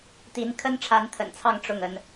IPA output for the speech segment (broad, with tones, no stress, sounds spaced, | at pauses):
t̪ i˧˥ n kʰ ə˥ n ʈ͡ʂʰ a˧˥ n t̪ʰ ə̰˨˩ n t͡sʰ ɑ˥˧ ŋ ʈ͡ʂ ʊ˥˩ ŋ ə˧˥ n